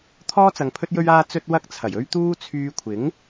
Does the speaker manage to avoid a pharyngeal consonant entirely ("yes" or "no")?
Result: yes